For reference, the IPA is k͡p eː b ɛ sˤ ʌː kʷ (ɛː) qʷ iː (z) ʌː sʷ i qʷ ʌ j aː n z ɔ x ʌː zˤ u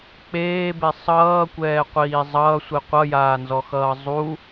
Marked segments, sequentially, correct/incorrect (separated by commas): correct, incorrect